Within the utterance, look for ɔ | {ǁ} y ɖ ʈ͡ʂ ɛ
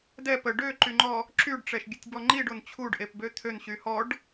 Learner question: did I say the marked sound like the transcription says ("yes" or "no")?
yes